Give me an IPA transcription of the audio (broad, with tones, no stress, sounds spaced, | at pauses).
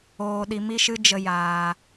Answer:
oː˨ ɗ i˨ m i˦ ʃ ɨ˦ d͡ʒ ə˧ j aː˨